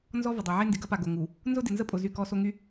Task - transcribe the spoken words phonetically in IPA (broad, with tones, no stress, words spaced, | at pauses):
nzɔ˦ və˨dˤo˨ʕe˦ ndɪ˨ɡɐ˦pa˨ ɡo˨ŋu˨ | nzʊ˦dɪ˨nzə˦ pʼʊ˨ zy˦˨kɔ˦so˦ ŋy˦